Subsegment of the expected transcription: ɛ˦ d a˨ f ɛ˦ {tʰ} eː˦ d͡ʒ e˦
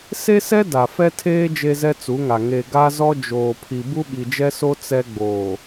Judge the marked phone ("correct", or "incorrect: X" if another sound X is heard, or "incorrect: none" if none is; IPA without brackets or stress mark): correct